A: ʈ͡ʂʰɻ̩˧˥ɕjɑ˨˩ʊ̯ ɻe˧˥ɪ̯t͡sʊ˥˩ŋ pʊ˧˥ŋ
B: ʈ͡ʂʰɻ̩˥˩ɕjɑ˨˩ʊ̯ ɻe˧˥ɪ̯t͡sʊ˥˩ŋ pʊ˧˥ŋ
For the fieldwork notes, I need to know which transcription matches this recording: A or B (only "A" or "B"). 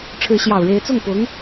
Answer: A